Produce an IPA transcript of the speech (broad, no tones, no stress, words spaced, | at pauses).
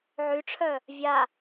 ʕyʈ͡ʂʰœ | vʲa